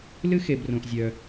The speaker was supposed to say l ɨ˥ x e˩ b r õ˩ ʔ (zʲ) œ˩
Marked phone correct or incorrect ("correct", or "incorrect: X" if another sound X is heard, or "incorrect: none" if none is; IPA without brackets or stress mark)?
correct